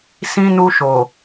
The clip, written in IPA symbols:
s ĩ˧ n u˧ ʃ o˨

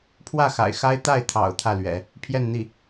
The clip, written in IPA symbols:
pʰ w ä˥˩ x a̰˨˩ ɪ̯ x a˥ ɪ̯ t̪ a˥˩ ɪ̯ t̪ʰ ɑ̰˨˩ ʊ̯ t̪ʰ ä˥˩ l ɥ ɛ̰˨˩˦ | pʰ j ɛ˥˧ n n̪ i˥˩

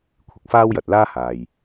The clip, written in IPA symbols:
kʷʰ ɪ˨ k̚ f aː˥ w j ɐ˨ t̚ l aː˥ h aː˨ j

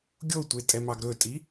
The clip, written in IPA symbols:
ɡʲ o tʷ e tʼ ɛ m ɑ ɡ ɾ ɵ tʼ i

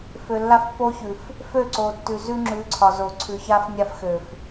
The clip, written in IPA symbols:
f ø˨ lː a˦ f pː o˦ ç ʉ˨ f | f ø˦˨ ǀ o˨ tː ʉ˨ z ʉ˦ ŋ͡ǁ ʉ˨˦ ǀʰ ɒ˨ z o˨ ǀʰ ʉ˨ ç a˦ f nʲ a˦ f x ø˨ f

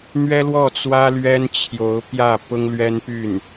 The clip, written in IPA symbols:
n̪ ɥ ɛ˥ l w ɔ˥˩ t͡s w ä˥ l ɥ ɛ˥ n t͡ɕʰ j o˧˥ ʊ̯ p j ä˥˩ p ʊ˥ ŋ l ɥ ɛ˥ n p y˥˩ n

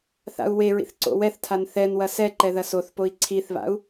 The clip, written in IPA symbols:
θ a̰ u̯ w e ɹ ḭ θ ǀ o̰ w ɛ θ tʰ a n θ ɛ n w ɐ s ɛ ǃ ɛ ð ɐ s o θ p o i̯ ǀʰ i θ β a̰ u̯

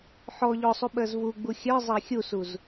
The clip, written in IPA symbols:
ħ ɔ ʎ ɔ sˤ u ɓ ɜ z v u ɡ͡b u xʲ ɜ zˤ æ xʲ u s u z

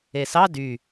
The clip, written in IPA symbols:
e s ɑ d y

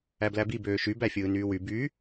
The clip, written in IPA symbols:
æ b l æ b i b øː ʃ y b æ fʲ ɯː n yː w y b y

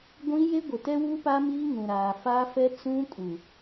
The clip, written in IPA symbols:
ɡʷ ĩ˦ j e˦ ɡʷ ɪ˨ t ɛ˦ w u˦ p a˦ m iː˦ ŋ ũ˨ ɾ aː˨ f a˦ f ɛ˦ t͡s ũ˦ kʼ u˨

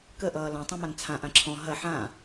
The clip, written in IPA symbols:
k ə ʔ ʌː l ã tˤ ɐ̃ m a n t͡sʰ ã ʔ ã ǁʰ ɔ̃ ɦ ɐ ħ ã

